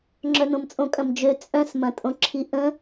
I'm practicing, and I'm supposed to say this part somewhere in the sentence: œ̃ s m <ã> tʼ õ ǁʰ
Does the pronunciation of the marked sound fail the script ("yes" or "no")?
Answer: yes